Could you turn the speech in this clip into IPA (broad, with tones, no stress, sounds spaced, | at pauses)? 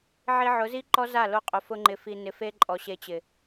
ʕ i˧ ʕ ʊ˨˦ z i˦ ǃ ɔ˦ z a˦˨ l o˧ qʼ ʊ˨ f ʊ˧ ŋ͡ǃ ɪ˨ f i˨ n ɪ˨ f e˧ ǃʼ ɔ˨ ɕ e˧ t͡ɕ ɪ˨